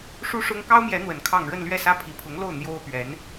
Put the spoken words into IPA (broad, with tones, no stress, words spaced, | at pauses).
ʂu˥ʂʊ˥ŋ kɑ˥ʊ̯mjɛ˧˥n̪wə˨˩n kʰɑ˥˧ŋ ɻə˥˧nlɥɛ˥˩sä˥ pʰi˨˩pʰʊ˧˥ŋlo˥˩ʊ̯ n̪jo˥ʊ̯pɥɛ˧˥n